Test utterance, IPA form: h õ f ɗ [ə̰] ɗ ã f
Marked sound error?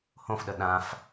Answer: yes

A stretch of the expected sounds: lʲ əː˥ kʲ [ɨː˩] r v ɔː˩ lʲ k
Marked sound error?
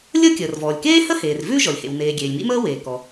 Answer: yes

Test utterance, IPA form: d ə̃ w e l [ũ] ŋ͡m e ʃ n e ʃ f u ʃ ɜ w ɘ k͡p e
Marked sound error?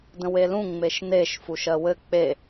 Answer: no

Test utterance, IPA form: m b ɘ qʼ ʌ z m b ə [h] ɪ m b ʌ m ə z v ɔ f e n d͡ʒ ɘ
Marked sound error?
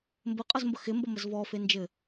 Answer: yes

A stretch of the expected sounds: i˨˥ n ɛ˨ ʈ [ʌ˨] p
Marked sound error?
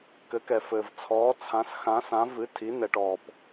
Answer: yes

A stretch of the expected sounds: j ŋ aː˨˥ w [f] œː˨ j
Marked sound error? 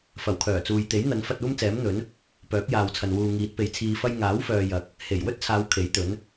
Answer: no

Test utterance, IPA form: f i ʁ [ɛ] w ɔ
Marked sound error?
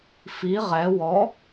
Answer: no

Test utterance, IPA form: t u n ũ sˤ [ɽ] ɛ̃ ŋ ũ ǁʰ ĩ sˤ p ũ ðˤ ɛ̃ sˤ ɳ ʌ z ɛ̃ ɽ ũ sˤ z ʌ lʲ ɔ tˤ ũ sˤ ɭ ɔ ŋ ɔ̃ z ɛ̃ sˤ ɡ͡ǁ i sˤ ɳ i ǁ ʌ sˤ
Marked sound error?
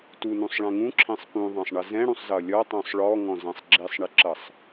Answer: yes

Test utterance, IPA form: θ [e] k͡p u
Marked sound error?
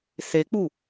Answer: no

